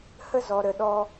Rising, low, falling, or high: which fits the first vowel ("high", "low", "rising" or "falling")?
high